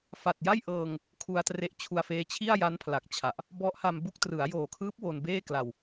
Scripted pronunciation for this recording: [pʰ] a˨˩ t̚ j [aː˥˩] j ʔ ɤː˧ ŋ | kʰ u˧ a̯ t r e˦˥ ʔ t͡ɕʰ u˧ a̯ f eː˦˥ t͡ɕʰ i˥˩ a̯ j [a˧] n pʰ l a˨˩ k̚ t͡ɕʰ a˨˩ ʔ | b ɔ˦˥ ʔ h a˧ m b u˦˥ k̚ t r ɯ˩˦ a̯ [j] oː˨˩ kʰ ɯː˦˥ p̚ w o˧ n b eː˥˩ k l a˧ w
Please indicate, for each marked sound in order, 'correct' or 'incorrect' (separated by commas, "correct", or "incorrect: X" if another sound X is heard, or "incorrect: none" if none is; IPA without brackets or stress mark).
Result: incorrect: f, incorrect: a˥˩, incorrect: a˦˥, correct